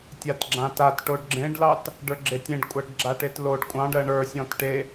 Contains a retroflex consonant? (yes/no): yes